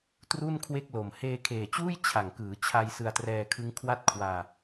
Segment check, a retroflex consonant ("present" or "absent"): absent